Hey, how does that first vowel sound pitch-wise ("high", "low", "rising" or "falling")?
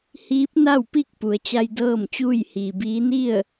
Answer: rising